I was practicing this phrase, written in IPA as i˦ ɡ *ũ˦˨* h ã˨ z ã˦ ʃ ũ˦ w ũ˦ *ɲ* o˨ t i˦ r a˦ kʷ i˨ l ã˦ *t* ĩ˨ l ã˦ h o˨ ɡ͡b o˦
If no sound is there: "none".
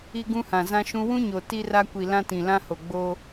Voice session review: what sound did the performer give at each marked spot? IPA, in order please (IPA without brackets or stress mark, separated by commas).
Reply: ũ˦, ɲ, t